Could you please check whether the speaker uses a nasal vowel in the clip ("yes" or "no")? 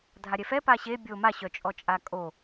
no